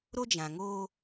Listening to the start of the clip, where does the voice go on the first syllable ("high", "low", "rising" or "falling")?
high